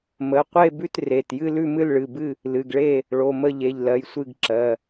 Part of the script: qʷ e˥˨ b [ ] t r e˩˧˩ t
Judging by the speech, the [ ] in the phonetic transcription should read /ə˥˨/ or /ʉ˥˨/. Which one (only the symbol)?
ʉ˥˨